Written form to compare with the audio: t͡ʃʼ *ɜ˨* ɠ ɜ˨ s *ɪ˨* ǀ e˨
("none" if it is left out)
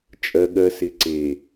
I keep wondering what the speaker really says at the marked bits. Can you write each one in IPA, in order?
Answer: ɜ˨, ɪ˨

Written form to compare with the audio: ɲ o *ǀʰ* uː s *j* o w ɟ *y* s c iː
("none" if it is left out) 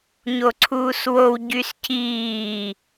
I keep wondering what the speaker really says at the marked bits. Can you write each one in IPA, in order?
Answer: ǀʰ, w, y

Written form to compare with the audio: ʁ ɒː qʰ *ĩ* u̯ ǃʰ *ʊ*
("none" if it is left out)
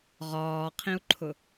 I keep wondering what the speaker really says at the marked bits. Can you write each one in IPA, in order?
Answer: ĩ, ʊ

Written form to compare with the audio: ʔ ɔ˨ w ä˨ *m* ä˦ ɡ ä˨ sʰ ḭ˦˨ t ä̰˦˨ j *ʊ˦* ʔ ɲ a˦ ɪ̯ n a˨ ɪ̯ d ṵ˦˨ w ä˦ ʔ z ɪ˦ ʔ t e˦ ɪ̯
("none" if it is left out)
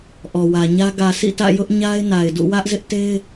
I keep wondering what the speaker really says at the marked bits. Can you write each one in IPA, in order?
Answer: ɲ, ʊ˦

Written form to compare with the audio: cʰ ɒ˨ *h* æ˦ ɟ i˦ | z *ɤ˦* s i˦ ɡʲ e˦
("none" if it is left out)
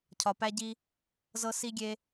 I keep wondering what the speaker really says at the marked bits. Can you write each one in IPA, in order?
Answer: p, ɤ˦

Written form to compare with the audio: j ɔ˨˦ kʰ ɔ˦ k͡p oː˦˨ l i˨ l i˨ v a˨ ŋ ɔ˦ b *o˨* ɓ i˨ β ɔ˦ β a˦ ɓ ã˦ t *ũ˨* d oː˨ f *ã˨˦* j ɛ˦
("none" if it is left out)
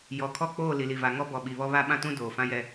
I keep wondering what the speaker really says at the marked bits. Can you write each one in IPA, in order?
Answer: ɔ˨, ũ˦, ã˦

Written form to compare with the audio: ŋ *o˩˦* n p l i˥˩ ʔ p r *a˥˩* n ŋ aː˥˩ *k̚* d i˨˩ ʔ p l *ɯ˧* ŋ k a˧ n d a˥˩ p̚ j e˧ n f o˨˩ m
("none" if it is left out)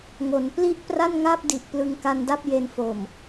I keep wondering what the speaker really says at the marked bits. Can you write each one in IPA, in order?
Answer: o˩˦, a˥˩, p̚, ɯ˧

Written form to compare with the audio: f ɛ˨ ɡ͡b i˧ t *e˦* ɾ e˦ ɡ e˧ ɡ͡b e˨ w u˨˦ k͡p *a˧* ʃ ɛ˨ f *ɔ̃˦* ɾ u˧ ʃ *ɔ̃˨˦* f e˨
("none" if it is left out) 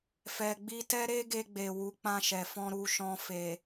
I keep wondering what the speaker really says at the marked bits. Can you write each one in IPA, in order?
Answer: ɛ˦, ã˧, ɔ̃˧, ɔ̃˧

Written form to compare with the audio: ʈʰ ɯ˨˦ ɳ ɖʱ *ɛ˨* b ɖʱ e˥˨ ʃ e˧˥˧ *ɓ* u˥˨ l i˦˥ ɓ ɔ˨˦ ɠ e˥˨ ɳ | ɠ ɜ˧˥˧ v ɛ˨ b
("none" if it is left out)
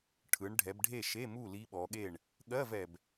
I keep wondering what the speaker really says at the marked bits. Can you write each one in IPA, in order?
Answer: ɛ˨˦, m

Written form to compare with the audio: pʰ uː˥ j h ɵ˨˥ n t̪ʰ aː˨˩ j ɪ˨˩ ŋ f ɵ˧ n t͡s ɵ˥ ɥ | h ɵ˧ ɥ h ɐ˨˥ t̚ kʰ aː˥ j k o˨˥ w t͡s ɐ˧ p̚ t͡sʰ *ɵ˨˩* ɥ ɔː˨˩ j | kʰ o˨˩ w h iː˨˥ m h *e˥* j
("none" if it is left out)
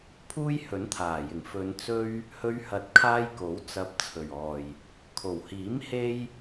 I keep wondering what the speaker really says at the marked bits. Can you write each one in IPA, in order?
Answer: ɵ˨˩, e˥

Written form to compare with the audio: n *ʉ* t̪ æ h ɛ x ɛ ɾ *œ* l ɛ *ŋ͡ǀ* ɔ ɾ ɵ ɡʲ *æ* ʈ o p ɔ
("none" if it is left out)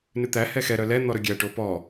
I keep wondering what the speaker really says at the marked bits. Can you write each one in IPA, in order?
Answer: ʉ, œ, n̪, æ

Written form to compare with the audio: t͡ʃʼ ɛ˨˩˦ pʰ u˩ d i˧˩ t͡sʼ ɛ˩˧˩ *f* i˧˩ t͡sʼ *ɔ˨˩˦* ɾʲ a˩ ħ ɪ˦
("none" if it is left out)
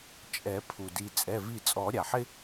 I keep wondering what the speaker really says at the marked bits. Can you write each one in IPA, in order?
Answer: v, ɔ˨˩˦

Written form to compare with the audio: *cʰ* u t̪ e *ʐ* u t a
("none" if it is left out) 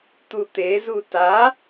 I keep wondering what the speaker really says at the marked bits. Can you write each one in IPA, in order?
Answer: t̪, z

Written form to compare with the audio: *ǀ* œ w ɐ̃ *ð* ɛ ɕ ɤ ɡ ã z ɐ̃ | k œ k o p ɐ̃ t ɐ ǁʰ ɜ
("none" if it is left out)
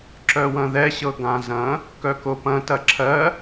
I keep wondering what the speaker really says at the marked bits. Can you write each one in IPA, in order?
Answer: ǁ, ð

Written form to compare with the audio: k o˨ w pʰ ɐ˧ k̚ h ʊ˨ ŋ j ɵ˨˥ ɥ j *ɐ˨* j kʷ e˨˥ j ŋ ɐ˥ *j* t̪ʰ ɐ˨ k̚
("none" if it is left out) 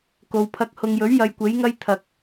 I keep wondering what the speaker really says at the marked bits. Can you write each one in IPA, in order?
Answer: ɐ˧, j

